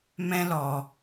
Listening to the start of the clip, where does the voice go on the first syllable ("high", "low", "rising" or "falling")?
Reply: high